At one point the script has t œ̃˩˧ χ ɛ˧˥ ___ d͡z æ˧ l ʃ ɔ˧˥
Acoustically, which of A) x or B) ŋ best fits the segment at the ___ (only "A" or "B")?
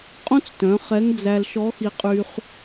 B